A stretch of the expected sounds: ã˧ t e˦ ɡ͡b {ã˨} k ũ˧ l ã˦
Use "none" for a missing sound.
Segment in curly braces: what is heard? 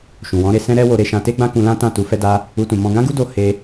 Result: ã˦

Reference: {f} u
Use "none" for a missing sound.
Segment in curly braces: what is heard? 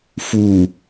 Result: f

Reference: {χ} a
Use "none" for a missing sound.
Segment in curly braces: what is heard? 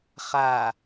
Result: χ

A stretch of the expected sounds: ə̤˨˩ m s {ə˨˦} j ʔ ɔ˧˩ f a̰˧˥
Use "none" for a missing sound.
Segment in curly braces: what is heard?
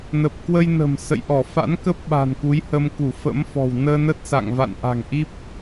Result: ə̰˧˨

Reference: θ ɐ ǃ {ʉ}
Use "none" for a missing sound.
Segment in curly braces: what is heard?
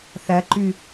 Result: ʉ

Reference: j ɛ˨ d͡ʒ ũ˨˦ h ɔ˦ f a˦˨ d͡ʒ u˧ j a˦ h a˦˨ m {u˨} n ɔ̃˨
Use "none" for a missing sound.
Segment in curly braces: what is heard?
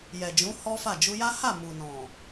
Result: u˨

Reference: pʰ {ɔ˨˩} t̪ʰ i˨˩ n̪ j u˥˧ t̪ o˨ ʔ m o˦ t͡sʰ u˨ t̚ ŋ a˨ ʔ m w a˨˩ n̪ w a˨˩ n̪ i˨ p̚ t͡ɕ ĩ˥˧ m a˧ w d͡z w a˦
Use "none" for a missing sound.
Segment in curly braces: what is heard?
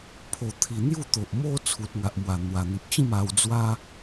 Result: o˨˩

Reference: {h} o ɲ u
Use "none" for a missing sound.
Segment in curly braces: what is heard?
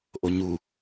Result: ʔ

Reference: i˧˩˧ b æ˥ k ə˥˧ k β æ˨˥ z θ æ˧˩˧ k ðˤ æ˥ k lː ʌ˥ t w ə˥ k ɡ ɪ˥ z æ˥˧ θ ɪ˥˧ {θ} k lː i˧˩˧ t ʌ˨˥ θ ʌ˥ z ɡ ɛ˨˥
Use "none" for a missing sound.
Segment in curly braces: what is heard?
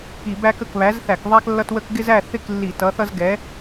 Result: none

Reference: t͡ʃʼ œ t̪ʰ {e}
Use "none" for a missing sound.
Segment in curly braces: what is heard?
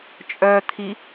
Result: i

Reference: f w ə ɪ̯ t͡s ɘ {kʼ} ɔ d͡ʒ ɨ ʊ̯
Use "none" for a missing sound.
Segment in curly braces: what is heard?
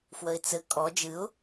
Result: kʼ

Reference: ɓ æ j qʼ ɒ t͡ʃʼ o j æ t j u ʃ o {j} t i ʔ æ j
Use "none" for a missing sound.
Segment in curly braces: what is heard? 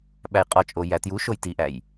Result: j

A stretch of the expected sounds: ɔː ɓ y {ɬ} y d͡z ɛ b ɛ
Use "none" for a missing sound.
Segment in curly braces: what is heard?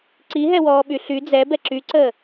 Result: ɬ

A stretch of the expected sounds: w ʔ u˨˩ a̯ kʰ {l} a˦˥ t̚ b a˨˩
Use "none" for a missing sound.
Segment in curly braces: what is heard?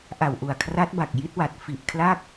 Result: r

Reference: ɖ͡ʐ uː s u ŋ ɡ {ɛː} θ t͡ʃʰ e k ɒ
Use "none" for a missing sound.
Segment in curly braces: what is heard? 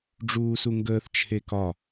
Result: əː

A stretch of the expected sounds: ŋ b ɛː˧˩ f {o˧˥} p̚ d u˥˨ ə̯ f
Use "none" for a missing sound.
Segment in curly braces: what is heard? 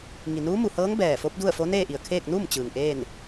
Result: o˧˥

